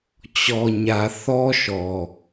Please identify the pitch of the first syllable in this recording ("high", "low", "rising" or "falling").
low